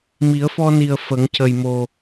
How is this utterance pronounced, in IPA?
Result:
mi˨˩˦ə̯fɔ˧ni˨˩ə̯ fə˨˩˦ŋcə˨˩jmo˨˩

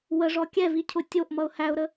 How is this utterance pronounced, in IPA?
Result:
wəʐɔ kʲɛvicʰʊ tʲoʔmʌʊ̯ hæʊ̯ɾə

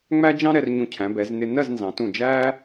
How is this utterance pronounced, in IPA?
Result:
ŋ͡mæ˥d͡ʒɑ̃˥ɾɛ˧r ɲũ˧˩cʰæ̃˩˧bɛ˩˧z nɪ˧ nɜ˥˧znzɑ̃˩˧tũ˧˩ d͡ʒæ˥

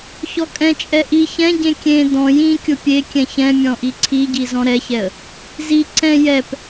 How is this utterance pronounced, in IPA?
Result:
çɔkʼɛ̃t͡ʃʼɛ ʔi çɛ̃ɟẽ kʲẽ dɔ̃ jĩ kʲʊpʲekʲɛ̃ çɛ̃ mʲɔ̃ʔiǀʰiɟi zɔ̃ɾɛçɛə̯ | zi ǀɛ̃ jɛp

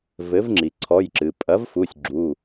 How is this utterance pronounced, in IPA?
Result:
vɘ˩˥vŋ͡ǁi˩ǀʰɔ˩˧˩jǁɨ˩ pʼɐ˩˥vfu˩˧˩sʲ ɡ͡ǁu˩˧˩

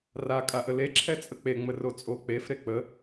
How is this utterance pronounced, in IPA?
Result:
ra kʼaʔəle ǁʰɛt͡sʼək͡pe ŋ͡mərot͡sʼo k͡pef ɾek͡pə

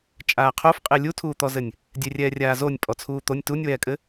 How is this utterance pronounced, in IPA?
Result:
t͡ʃʼaːqʰofqʼe lʲutʰuːt̪ɔzɘnʲ | dʲerʲɛːrʲaːzonʲ pʼɔt͡sʰuːt̪onʲ tunʲwɛːkʼɘ

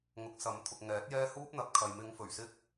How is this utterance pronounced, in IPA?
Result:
ŋʊ˨˥k̚sɐ˨˥mt̪ʰʊ˨k̚ ŋɛː˨˥t̚jɛː˥ huː˥p̚n̪ɐ˨˥p̚kʰɐ˨j mɪ˨˧ŋfɵ˨˩ɥ sɪ˥k̚

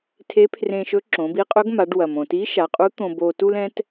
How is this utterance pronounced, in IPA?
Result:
tʰe˧˥pʰrẽ˧ʃɵ˧˥ ǁõ˩˧bi˧˥ qʼɵ˧˥ɡma˩˧ɖ wɐ˩mõ˩ ti˧˥ʃa˩˧qʼu˧˥ t̪õ˧bo˧tu˥lɛ̃˧˥t

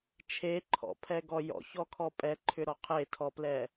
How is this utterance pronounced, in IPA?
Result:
t͡ʃʰeǃʰɔ̰pʰɛɡɔ jɔ̰çɔkʰɔ pʼɛǃʰʏɾɔ qʰetʰɔplɛ

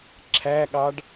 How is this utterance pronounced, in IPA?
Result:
ǁʰæɠɑɖ

